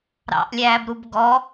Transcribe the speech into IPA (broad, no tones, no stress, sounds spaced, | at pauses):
ɾ ɑ̰ ʔ lʲ æː b ɾ u b ɡ ɔ